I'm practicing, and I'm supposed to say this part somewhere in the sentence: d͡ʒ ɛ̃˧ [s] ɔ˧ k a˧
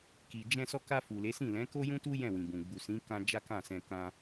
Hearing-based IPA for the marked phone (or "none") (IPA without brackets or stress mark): s